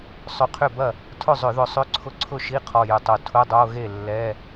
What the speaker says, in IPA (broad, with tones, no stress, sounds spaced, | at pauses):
sˤ ʏ˧˩ qʰ ʏ˥˩ b ɐ˥˩ | tʰ ʊ˥˩ zˤ ʏ˧˩˧ ð ʊ˧˩ sˤ ʏ˧˥˧ ǀʰ ʊ˧˥˧ ǀʰ ʊ˥˩ ʃ i˧˥˧ qʰ ɔ˧˩ j ʏ˧˩ tˤ o˧˩ tʰ ʊ˧˥˧ dˤ o˧˥˧ ɣ e˥˩ lː ɛ˧˥˧